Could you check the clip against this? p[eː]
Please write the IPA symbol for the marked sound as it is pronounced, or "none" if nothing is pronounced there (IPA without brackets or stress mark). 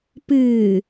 ɨː